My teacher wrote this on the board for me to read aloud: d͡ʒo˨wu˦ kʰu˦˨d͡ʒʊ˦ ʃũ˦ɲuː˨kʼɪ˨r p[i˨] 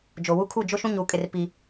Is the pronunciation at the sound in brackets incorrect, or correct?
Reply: correct